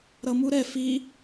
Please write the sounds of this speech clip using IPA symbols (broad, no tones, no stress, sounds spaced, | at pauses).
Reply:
ɾ ʌ m u ɾ ɛ f i